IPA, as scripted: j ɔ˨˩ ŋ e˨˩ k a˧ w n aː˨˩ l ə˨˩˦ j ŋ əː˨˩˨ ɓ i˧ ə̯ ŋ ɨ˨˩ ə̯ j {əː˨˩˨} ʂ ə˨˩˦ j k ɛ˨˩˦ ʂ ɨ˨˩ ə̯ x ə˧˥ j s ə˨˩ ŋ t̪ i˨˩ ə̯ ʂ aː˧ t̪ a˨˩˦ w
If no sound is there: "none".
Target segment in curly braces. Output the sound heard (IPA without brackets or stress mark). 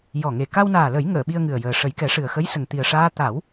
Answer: əː˨˩